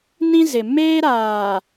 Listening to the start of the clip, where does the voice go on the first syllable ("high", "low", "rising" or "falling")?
high